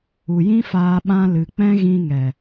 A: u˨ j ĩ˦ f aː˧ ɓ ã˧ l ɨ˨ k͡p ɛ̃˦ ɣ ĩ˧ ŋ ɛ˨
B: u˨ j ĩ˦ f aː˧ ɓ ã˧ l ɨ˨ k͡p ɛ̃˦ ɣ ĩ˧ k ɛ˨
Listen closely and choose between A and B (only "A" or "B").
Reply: A